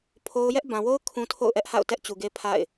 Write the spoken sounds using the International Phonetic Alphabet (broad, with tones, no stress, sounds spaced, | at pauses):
pʰ o˦ ʊ̯ j ɛ˦ ʔ b ã˨ w o˦ ʊ̯ kʰ ũ˦ tʰ o̰˦˨ ʊ̯ ʔ ɛ˦ ʔ h a̰˦˨ ʊ̯ t ɛ˦ ʔ t͡ɕ u˨ ɡ e˦ pʰ a̰˦˨ ɪ̯